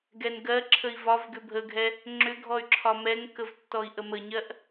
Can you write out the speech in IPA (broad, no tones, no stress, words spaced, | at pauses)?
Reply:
ɡɛnɡɜǁʰəi̯ vɒvɡʏ bʱəɡʱɛ | ŋ͡ǁʏɡʱɔy̯ ǁʰɒmɛŋkəv tːɔi̯ʔəməɲɜʔ